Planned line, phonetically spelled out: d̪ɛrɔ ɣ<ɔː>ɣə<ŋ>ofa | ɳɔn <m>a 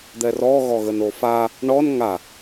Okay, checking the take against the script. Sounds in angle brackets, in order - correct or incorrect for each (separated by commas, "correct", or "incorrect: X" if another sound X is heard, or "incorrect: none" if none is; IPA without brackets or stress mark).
incorrect: ɔ, incorrect: n, incorrect: ŋ